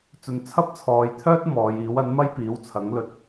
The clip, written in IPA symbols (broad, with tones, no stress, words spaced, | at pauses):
t͡sɵ˧n t͡sʰɐ˥p̚t͡sʰɔː˨˧jt̪ʰœː˥t̚ mɔː˨˧jiː˨˥w ɐ˨˥nmɐ˥j piː˨˥wt͡sʰɐ˨˥ŋlɵ˧t̚